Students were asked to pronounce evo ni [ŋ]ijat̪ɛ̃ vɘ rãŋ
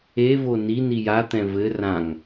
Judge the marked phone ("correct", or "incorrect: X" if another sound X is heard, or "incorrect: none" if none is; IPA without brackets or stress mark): incorrect: n